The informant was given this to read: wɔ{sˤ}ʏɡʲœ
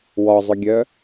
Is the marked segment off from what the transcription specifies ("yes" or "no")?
yes